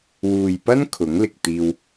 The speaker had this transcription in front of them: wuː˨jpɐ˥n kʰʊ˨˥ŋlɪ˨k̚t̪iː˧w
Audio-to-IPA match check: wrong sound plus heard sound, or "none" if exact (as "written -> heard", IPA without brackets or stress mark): none